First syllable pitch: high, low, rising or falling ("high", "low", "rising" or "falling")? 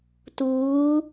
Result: rising